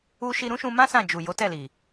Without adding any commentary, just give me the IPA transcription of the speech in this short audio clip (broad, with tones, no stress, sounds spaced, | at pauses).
u˧ ʃ i˧ ɾ ũ˦ ʃ ũ˧ m ã˦ s ã˦˨ d͡ʒ u˨ j o˨˦ t ɛ˦˨ l i˨